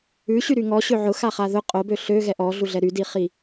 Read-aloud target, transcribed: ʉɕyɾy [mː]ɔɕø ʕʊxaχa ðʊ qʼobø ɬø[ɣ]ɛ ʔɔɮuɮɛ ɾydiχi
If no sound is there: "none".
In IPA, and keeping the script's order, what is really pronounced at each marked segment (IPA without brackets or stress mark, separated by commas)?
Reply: ŋ, ɣ